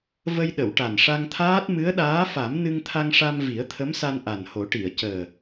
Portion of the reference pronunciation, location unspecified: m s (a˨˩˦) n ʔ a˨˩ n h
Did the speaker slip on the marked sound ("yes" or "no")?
yes